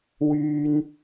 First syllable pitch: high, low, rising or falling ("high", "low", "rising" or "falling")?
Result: high